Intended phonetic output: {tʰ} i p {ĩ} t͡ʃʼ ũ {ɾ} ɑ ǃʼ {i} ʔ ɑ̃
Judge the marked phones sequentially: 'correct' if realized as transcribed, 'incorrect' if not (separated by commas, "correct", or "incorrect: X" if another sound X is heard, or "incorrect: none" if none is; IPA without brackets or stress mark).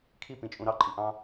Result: incorrect: kʰ, correct, correct, correct